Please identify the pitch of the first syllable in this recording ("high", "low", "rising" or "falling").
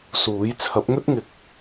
rising